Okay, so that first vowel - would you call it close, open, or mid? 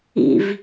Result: close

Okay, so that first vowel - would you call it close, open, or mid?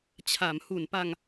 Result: open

